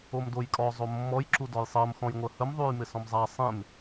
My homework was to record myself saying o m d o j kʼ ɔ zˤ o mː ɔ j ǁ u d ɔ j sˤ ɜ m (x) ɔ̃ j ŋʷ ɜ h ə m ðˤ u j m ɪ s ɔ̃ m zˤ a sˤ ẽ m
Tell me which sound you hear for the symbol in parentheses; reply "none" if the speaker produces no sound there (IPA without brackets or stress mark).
x